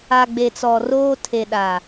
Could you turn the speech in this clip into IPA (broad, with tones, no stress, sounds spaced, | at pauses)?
a˨ ɡ͡b e˨ t͡s ɔ˨ r oː˦ tʰ e˨ ɗ a˨